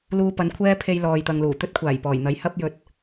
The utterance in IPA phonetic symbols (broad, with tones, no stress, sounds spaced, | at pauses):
l uː˧ p ɐ˨˧ n kʷʰ ɛː˥ pʰ e˧ j l ɔː˨ j t̪ ɐ˨ ŋ l uː˨˩ t̪ ɵ˥ t̚ kʷʰ aː˨˩ j p ɔː˨˩ j n̪ ɐ˨˥ j h ɐ˥ p̚ j ɵ˨˥ t̚